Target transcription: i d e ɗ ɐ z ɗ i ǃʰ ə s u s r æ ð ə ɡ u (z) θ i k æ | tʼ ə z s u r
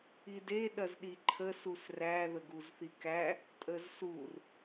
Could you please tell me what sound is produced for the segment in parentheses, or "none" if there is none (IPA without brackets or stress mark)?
z